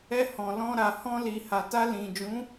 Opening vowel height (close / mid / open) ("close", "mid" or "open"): mid